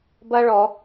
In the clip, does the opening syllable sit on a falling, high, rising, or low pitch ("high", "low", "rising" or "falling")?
high